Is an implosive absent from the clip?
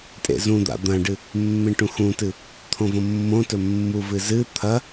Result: yes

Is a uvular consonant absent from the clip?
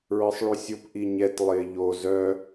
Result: yes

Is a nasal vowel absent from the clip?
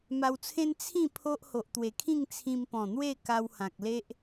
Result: no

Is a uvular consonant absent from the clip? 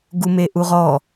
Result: no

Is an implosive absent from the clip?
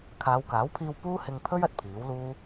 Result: yes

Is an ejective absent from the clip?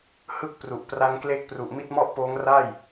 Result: yes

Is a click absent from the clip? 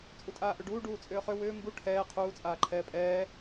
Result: no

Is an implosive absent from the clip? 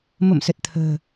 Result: yes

